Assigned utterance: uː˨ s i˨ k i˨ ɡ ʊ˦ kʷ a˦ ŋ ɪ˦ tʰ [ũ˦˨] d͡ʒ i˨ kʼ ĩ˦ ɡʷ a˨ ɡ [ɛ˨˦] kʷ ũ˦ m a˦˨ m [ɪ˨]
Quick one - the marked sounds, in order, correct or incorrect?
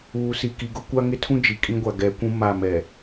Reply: incorrect: ũ˦, correct, incorrect: ɛ˨

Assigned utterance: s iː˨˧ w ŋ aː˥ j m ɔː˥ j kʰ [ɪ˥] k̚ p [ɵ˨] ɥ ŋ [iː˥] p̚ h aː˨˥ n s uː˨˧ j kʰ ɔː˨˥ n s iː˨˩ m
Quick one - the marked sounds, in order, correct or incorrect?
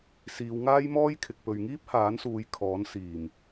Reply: incorrect: ɪ˨, correct, correct

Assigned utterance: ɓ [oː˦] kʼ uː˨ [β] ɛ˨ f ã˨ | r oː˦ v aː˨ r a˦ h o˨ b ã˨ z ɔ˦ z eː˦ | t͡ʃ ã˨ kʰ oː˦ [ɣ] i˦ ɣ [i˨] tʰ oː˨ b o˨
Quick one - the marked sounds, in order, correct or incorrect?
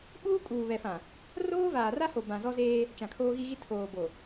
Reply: incorrect: uː˦, correct, correct, incorrect: i˦

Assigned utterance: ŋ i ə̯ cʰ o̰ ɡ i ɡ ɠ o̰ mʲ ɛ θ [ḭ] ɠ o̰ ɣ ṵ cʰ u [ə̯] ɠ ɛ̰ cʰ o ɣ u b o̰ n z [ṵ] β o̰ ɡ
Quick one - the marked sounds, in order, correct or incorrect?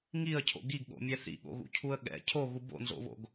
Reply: correct, correct, incorrect: o̰

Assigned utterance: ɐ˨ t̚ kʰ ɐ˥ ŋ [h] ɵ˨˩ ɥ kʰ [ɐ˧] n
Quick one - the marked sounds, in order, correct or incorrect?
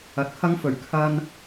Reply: incorrect: f, correct

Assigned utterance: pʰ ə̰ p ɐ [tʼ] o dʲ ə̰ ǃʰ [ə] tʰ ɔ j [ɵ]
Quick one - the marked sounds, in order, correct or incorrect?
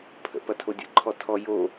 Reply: incorrect: tʰ, incorrect: ɔ, incorrect: o

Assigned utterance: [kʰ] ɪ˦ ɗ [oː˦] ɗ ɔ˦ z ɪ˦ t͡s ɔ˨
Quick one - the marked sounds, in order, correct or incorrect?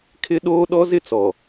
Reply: correct, correct

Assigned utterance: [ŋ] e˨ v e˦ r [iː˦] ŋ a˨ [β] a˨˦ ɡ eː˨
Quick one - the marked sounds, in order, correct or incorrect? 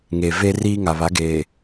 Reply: correct, correct, correct

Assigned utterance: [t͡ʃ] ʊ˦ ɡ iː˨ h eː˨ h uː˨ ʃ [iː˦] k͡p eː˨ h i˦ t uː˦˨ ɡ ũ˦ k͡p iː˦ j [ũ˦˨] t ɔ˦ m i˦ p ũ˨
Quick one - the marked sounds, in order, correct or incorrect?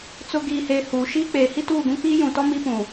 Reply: incorrect: t͡s, correct, incorrect: ũ˨

